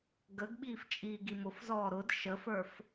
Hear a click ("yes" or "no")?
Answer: no